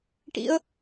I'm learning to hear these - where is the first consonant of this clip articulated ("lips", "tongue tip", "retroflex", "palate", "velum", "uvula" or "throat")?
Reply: retroflex